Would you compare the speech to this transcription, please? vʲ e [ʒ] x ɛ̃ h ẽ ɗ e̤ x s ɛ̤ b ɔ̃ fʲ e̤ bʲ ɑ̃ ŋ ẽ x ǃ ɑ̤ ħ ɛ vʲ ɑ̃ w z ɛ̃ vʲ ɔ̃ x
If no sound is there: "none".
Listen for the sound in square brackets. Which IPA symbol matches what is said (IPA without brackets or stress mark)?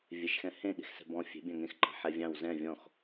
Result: ʃ